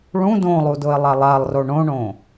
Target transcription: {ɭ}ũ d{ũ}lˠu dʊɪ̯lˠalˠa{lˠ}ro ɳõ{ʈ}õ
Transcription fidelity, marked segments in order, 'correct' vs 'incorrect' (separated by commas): correct, incorrect, correct, incorrect